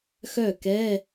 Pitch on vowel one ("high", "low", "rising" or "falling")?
falling